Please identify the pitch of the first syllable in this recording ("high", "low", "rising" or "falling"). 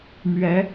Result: rising